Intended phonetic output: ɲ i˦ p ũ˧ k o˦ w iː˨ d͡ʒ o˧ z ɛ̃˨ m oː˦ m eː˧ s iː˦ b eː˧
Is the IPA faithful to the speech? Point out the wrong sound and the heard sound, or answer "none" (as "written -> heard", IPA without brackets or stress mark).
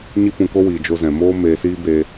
none